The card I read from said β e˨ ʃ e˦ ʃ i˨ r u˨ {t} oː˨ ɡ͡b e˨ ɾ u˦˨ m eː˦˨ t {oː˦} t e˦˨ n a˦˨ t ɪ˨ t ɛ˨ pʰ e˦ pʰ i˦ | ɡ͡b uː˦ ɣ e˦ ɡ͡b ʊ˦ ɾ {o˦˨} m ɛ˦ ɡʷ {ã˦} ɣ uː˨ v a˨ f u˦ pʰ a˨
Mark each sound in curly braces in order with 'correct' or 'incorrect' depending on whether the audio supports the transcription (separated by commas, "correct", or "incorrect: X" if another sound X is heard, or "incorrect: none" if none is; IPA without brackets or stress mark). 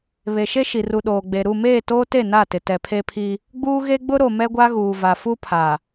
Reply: incorrect: ɗ, correct, incorrect: o˨, incorrect: a˦